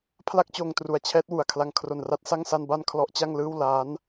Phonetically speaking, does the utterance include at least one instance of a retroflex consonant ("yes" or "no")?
no